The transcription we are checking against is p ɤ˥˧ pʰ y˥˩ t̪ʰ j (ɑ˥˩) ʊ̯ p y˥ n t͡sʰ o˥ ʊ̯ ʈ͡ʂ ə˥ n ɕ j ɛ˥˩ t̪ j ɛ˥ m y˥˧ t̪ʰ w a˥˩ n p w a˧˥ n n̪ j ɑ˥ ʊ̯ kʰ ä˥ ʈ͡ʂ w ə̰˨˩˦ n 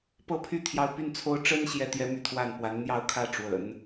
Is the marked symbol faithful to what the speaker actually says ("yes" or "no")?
no